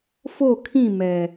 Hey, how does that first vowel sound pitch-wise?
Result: falling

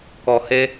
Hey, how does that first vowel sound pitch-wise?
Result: low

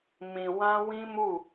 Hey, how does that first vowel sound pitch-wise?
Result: low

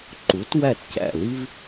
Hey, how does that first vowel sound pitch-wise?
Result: rising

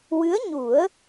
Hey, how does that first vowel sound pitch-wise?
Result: rising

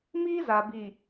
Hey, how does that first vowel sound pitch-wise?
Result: high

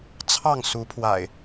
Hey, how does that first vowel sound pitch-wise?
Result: falling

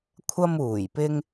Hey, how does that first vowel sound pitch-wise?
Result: high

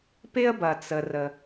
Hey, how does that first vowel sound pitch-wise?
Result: high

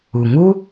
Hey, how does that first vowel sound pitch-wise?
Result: low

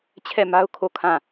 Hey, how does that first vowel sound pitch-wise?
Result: falling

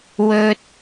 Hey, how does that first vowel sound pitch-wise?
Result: high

